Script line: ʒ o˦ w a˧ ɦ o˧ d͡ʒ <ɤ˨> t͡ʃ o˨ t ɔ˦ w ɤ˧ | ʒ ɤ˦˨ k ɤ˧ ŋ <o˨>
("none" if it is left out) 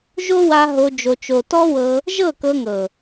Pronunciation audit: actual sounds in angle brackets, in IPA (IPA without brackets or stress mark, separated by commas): o˨, ɤ˨